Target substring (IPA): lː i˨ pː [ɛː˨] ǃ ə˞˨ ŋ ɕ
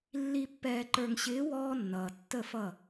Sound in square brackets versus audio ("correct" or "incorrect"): correct